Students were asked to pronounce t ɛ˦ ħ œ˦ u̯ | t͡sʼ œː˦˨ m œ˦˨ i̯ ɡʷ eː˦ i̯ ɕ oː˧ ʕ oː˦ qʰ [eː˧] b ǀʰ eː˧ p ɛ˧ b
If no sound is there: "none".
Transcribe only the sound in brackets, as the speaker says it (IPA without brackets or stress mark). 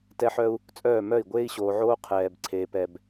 ɛː˧